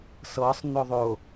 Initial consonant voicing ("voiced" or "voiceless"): voiceless